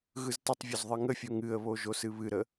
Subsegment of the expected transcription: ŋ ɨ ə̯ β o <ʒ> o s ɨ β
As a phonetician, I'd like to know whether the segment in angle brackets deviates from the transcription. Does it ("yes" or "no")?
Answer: no